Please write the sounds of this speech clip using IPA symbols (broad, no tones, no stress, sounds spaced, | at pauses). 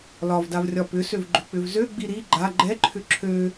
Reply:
l ɒ v d a v rʲ ɒ p ʏ s ø v ɡ͡ǃ ʏ k͡p ʏ v z ø ɡ͡b i ɾ i ɡ͡ǃ a ɡ͡ǃ ɛ ǃʰ ʏ ǁʰ ø